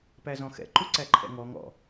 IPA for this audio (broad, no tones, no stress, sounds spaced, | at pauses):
p æ z ɔ̃ x ɛ̰ ǃ u ǀ æ ǃʰ ɛ̰ ŋ ɔ ŋ ɔ̰